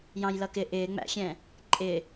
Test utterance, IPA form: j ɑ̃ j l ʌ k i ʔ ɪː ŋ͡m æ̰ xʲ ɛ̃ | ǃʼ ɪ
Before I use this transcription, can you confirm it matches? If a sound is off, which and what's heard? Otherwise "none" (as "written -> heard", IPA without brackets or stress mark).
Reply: i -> ɪ